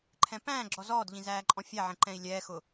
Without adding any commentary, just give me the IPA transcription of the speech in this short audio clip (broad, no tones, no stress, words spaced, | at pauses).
ǃʰɛ̃pæ̃ːɡ͡ǁɔ zɔːdʎĩ zæːǃʼɔ̃fʲæʕɛ̃ ǃɛ̃i̯lʲɛːxʊ